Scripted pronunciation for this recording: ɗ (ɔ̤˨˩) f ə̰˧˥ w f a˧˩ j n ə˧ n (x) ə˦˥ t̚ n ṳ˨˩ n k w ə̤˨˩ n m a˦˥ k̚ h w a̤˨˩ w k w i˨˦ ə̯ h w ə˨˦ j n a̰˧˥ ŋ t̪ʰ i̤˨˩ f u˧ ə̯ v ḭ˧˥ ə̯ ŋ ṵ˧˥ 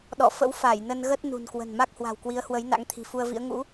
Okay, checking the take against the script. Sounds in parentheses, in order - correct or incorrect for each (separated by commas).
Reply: incorrect, incorrect